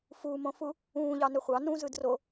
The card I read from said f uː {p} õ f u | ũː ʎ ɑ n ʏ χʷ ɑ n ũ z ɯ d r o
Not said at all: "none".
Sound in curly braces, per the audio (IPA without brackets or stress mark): m